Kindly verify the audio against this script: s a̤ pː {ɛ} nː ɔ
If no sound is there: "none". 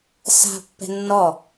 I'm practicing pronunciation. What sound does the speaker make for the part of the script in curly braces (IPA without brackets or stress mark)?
ɛ̤